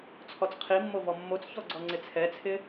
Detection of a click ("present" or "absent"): present